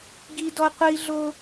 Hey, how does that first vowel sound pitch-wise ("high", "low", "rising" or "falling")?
high